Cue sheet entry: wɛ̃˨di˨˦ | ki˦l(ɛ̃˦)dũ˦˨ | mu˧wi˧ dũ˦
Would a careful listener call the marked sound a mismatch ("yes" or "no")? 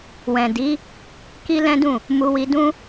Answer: no